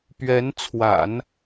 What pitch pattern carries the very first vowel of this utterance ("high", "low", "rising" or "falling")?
rising